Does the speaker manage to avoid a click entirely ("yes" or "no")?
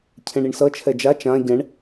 yes